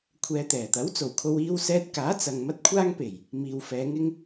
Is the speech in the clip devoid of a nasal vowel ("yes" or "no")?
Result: yes